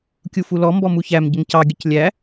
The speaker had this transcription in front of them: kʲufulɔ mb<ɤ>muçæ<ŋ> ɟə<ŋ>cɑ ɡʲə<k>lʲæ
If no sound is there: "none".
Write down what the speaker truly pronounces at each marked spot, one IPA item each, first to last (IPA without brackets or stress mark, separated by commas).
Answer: ɔ, m, ŋ, c